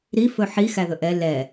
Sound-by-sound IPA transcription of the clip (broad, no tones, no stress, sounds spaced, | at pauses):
ɾ i f ɵ ħ i x æ ð ɵ ʔ ɛ l ɛ